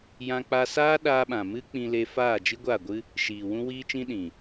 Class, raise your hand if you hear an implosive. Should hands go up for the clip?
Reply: yes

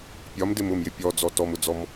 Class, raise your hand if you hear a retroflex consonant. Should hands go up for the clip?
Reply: no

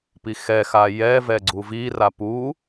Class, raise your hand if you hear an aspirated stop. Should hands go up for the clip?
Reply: no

